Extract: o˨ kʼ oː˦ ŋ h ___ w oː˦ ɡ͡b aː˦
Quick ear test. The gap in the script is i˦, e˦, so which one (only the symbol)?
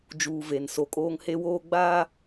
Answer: e˦